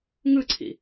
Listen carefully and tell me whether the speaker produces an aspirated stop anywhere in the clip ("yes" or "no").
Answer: yes